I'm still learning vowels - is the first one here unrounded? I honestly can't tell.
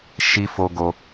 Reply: yes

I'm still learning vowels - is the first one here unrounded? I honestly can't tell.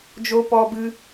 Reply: no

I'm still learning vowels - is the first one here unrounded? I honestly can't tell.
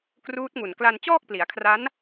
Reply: no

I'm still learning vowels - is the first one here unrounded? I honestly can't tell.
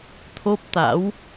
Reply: no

